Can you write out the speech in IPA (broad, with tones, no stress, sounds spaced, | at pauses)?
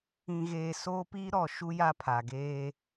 ĩ˨ ɣ eː˨ s oː˦ p iː˦ ɾ ɔ˨ ʃ u˦ j a˦ pʰ a˨ ɡ eː˦